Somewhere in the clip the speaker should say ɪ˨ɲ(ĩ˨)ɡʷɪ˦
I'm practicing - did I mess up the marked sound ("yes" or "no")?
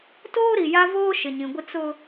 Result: no